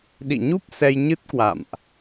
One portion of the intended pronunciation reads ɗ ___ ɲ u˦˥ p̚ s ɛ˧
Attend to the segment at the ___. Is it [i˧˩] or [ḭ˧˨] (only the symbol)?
ḭ˧˨